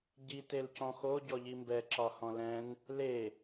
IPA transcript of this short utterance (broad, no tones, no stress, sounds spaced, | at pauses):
ɟ i t e l c ɔ̃ x o ɟ ɔ ʎ i m b ɛ ǁ ɒ h ɔ̃ l ɛ̃ n | l e